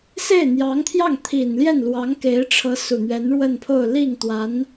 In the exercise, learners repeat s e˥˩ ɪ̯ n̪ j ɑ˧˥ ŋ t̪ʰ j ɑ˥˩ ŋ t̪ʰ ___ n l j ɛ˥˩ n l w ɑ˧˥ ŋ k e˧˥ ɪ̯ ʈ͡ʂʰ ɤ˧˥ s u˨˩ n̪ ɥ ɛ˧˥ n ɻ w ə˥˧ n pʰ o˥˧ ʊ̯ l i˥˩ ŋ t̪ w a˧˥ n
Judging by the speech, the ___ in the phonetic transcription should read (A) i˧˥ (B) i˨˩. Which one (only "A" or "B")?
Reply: B